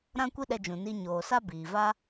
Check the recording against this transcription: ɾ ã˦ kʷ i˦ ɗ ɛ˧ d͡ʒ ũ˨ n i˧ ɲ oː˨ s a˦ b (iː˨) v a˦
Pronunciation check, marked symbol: correct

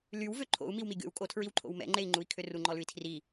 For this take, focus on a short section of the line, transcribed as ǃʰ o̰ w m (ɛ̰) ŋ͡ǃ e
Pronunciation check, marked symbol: correct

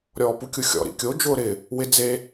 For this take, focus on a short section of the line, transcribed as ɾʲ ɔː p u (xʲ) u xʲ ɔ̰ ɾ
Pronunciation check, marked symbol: incorrect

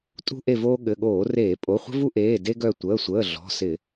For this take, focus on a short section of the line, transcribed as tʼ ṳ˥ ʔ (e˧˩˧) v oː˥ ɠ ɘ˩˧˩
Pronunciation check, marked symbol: incorrect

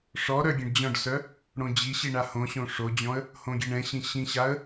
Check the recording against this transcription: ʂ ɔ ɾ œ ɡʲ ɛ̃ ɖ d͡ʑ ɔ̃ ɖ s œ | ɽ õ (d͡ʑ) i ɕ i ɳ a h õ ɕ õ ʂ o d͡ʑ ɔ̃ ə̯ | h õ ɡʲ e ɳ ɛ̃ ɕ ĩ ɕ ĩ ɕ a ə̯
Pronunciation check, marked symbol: correct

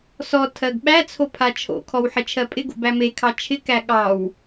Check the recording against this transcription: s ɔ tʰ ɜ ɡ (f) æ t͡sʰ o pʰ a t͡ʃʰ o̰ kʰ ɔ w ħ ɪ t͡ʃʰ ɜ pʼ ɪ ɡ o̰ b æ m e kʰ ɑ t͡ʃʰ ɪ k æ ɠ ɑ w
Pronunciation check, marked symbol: incorrect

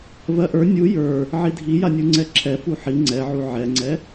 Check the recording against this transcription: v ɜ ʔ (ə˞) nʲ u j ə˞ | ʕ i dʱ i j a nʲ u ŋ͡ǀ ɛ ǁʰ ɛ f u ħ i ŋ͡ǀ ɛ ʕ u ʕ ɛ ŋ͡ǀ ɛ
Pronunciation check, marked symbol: correct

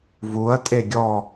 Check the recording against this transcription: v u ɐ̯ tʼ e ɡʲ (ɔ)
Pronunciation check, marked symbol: correct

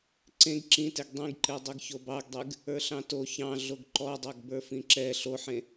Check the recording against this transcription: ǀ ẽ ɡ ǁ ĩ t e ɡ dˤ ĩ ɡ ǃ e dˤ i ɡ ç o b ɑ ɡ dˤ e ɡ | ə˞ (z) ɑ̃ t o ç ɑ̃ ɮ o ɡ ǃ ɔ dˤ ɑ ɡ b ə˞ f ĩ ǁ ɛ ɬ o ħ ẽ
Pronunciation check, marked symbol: incorrect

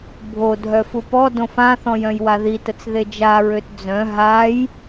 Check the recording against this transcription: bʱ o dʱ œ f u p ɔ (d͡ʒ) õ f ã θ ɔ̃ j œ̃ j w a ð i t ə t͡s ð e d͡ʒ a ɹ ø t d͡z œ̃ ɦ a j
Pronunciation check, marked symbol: incorrect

